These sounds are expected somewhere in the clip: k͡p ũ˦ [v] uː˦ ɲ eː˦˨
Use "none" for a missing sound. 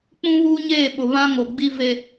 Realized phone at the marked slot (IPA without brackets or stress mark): β